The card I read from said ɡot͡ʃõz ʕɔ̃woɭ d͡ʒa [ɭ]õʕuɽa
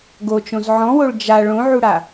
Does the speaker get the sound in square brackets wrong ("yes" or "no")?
no